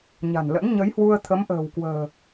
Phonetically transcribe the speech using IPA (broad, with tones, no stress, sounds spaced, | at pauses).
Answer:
ɲ a̤˨˩ n l ə̰˧˥ n ɲ ə˨˦ j h w u˧ ə̯ t̪ʰ ə˨˦ m ʔ ə̤ː˨˩ w k w ə̤ː˨˩